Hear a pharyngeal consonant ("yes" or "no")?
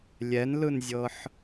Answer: yes